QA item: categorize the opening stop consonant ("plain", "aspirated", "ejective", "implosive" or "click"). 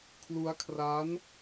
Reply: aspirated